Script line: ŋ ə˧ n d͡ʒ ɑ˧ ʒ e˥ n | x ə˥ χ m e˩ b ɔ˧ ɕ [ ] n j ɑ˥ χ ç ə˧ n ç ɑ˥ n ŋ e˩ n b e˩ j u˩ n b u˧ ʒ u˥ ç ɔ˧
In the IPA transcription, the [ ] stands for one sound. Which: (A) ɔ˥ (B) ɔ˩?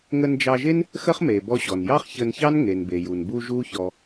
B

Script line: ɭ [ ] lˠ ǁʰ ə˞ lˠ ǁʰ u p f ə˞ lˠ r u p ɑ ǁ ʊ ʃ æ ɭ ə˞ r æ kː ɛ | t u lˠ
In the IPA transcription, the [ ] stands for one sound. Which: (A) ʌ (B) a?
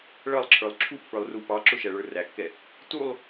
A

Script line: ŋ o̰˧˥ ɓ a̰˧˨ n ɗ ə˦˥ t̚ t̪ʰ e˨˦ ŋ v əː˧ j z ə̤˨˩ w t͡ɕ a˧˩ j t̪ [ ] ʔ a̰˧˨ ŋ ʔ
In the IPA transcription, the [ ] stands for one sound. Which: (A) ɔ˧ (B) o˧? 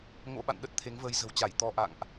A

